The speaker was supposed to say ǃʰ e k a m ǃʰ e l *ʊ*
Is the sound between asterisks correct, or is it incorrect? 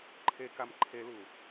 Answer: incorrect